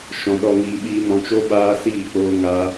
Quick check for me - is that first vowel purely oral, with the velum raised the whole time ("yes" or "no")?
no